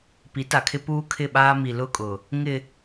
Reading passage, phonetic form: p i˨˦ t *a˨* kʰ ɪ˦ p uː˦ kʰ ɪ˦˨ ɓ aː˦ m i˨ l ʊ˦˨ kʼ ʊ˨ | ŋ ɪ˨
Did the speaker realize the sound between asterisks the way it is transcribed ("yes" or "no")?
yes